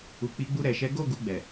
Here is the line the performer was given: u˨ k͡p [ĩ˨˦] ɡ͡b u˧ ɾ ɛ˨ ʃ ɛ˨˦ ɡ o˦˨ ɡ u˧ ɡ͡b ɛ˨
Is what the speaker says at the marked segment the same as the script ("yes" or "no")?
no